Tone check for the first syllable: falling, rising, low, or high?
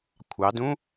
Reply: rising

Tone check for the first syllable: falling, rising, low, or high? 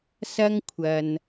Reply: high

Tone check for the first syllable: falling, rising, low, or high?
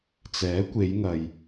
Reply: rising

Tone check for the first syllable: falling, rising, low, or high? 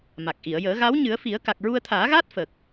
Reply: low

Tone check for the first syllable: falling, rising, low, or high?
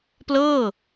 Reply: falling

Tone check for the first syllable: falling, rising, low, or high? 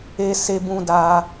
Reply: high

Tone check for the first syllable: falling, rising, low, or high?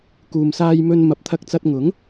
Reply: low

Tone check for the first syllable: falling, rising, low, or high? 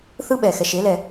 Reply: high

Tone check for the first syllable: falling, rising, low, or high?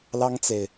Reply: high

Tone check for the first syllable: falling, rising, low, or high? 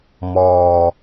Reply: low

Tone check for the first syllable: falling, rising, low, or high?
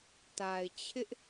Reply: low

